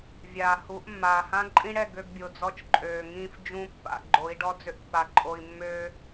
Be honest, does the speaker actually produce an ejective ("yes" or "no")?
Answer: yes